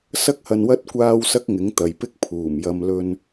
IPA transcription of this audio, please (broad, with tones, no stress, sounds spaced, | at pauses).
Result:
s ɐ˥ k̚ h ɐ˧ n w ɐ˥ t̚ kʷ aː˥ w s ɐ˥ k̚ ŋ ɪ˨˥ ŋ t̪ ɐ˨ j p ɪ˥ k̚ pʰ uː˨˩ m j ɐ˧ m l ɵ˧ n